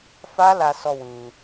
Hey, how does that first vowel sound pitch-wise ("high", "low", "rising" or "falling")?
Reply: high